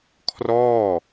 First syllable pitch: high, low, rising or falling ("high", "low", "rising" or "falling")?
falling